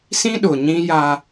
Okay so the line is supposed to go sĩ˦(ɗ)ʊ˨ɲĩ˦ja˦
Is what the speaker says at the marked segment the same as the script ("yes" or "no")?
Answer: yes